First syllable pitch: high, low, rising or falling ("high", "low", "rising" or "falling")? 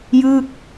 falling